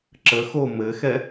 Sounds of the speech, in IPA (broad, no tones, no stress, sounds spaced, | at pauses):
ǁ ə x o m ɘ x ɛ